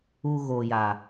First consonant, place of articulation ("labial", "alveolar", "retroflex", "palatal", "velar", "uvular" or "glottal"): velar